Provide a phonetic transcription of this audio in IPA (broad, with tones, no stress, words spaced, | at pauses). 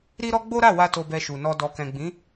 ɾi˧ɾɔ˧ ɡ͡bo˦ɾa˦˨wa˧ to˧bɛ˧ʃu˨nɔ˧ dɔ˨kɛ̃˨ɡ͡bĩ˨˦